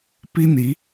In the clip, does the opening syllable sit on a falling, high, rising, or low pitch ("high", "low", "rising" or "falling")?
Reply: high